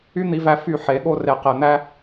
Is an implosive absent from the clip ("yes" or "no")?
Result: no